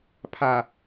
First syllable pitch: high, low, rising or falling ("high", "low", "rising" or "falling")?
low